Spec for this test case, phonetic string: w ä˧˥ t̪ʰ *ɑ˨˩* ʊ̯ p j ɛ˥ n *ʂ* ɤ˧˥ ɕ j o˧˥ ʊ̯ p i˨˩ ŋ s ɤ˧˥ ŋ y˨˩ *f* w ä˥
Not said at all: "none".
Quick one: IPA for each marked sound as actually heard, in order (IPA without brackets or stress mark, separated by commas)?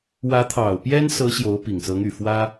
ɑ˨˩, s, f